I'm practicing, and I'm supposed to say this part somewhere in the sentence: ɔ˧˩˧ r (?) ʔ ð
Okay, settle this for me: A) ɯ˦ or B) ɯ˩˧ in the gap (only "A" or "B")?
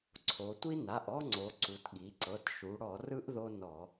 A